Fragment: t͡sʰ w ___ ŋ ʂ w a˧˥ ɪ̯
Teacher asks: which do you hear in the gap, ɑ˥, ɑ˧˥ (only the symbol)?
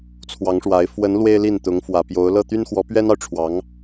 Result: ɑ˧˥